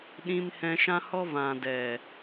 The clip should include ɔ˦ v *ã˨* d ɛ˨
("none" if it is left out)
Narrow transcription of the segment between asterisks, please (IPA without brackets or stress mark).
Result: ã˨